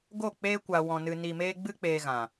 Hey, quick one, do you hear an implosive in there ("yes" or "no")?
no